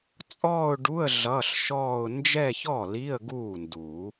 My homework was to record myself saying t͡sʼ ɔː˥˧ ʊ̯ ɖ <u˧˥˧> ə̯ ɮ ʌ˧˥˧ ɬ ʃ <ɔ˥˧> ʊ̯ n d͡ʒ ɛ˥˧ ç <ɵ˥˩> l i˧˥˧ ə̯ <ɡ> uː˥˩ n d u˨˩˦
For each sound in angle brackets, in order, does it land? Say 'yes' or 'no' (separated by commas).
yes, no, no, yes